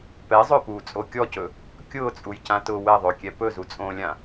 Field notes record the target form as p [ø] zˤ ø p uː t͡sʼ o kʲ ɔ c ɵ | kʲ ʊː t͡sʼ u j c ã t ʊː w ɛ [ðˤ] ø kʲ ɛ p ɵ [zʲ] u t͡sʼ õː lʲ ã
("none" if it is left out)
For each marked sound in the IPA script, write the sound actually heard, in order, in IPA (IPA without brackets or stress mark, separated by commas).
ɛ, ðˤ, z